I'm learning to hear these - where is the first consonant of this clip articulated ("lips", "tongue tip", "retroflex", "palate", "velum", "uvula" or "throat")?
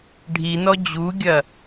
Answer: retroflex